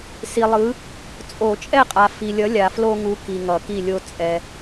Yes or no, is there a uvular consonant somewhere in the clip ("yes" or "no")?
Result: yes